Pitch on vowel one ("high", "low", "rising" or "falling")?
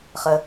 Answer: low